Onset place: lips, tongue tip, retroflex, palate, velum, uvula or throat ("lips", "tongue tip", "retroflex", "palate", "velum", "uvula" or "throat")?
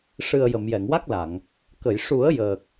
retroflex